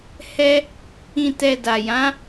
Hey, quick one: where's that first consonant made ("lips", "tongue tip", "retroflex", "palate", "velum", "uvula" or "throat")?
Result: throat